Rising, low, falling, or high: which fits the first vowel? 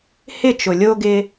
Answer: falling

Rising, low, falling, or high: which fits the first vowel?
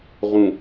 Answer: low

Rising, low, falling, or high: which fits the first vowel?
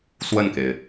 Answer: falling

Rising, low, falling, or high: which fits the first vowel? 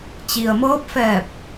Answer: low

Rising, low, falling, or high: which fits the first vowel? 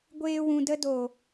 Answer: high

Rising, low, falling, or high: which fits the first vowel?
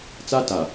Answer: high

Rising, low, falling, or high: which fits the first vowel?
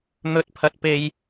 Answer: rising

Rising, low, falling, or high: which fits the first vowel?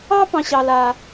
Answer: high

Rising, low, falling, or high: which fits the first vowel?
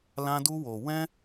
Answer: high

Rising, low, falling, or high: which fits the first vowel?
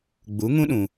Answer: rising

